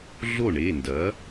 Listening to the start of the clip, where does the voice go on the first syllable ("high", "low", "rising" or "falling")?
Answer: falling